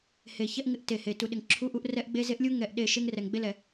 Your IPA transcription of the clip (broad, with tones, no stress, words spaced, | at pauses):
he˨ çɛ˦ʔŋɪ˦ʔ te˨he˨ tu˨ɗɪ˨ŋǁʰu˦ʔu˦ʔ rɛ˦ʔɡ͡be˦ ze˦ʔlʲu˦ ŋɛ˦˨ʔ ɗe˦˨ ʃe˦ŋrɛ˨ŋ ɡ͡be˦lɛ˨